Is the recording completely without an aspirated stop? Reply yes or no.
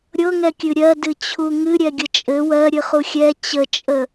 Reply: no